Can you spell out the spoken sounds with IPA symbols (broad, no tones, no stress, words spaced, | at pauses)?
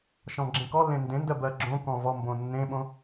ʃɔ̃ɡ͡ǁẽkɔlːẽ ndẽndɜ bɜɡ͡ǁõkɔ̃ vɔmbõ nːẽɓõ